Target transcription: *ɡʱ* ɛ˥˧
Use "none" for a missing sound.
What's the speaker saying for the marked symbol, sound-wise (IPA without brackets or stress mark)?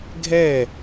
ɡʱ